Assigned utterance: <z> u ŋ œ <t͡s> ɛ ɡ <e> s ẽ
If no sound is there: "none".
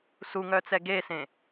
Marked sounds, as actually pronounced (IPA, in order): s, t͡s, e

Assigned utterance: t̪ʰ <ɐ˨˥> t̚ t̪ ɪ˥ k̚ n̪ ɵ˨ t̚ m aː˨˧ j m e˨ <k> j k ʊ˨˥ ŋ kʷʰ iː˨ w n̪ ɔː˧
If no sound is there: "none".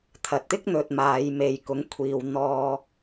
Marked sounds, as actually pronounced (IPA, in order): ɐ˨, none

